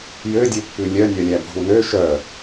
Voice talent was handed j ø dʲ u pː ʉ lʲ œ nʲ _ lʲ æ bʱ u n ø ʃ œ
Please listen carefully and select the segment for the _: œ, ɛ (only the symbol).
œ